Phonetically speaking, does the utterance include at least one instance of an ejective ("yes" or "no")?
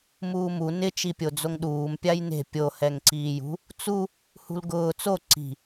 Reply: no